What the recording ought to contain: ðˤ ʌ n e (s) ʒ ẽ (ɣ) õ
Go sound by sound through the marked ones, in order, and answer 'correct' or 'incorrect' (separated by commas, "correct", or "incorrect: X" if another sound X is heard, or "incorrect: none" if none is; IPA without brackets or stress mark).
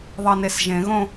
correct, correct